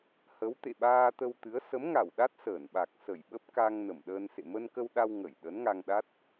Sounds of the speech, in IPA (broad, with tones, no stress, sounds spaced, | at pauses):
h ə˨˦ w t̪ ḛ˧˨ ɓ aː˧ t̪ ə˧ w t̪ ɨ˨˦ ə̯ s ə˨˦ m ŋ a˧˩ w ɗ a˦˥ t̚ s əː˧˩ n ɓ a˨˩ k̚ s ə˧˩ j ɓ ə˦˥ p̚ k a˧ ŋ n ə˧˩ m ɗ əː˧ n s ḛ˧˨ m ə˧ n k ə˧ w ɗ a˧ w ŋ ə˧˩ j ɗ ə˨˦ n ŋ a˧ ŋ ɗ a˦˥ t̚